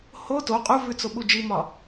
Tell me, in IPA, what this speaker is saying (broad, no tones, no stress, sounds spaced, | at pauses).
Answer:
h o t o qʼ u v ʉ t͡s o ɓ u d͡ʒ i m ɒ